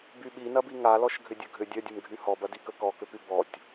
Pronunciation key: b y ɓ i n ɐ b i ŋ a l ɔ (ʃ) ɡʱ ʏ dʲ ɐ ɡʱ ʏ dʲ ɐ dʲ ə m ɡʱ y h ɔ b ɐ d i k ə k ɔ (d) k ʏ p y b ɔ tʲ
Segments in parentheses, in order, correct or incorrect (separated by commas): correct, incorrect